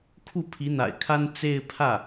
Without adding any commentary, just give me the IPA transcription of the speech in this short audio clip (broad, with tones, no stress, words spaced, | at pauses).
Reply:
kʰu˥˩pʰi˧˥n̪a̰˨˩ɪ̯kʰa˥n t͡se˥˧ɪ̯ pʰä˥˩